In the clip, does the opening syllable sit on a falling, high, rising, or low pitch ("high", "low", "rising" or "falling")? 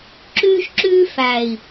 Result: high